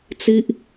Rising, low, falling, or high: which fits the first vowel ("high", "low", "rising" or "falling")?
high